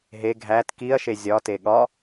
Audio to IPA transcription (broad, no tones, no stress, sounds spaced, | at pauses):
ɦ e ɡʱ æ t k i ɐ̯ ʃ e zʲ ɒ t e ɠ ɒ